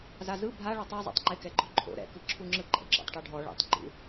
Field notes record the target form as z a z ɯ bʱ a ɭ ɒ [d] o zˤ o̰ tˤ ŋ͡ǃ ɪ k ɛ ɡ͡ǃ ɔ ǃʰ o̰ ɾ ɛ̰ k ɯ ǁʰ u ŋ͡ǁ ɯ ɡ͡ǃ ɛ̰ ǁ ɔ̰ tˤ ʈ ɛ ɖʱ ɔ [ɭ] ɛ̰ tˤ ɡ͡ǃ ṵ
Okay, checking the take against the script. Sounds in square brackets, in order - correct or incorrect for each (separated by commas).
incorrect, correct